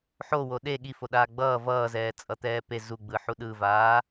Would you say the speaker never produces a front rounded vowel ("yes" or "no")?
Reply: yes